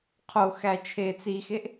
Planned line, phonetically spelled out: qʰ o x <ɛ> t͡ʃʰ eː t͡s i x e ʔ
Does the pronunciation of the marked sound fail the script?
yes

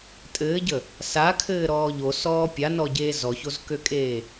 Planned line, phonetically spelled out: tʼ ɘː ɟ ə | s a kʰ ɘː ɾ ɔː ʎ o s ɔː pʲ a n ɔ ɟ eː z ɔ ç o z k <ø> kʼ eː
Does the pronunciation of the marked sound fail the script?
no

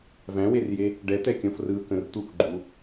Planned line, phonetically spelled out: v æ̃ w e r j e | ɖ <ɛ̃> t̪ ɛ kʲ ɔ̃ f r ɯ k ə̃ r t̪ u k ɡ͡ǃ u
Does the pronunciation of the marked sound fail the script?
yes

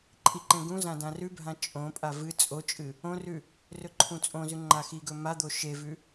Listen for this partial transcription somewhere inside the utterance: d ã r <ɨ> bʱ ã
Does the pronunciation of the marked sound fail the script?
yes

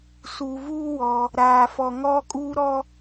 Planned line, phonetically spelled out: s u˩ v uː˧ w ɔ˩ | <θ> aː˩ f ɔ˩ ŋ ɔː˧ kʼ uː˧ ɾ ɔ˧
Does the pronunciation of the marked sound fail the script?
yes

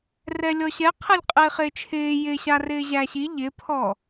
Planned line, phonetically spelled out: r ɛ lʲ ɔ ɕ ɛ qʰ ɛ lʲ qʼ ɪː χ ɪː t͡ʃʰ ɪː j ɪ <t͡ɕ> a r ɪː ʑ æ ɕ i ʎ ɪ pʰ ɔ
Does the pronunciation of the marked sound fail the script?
yes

